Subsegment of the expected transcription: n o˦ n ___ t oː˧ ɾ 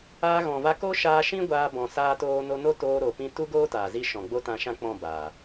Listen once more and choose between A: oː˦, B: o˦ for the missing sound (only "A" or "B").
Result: B